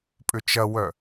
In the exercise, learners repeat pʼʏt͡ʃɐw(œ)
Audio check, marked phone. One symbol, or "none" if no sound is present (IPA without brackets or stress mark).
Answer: œ